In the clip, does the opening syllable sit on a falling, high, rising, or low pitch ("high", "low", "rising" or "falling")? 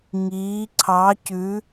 rising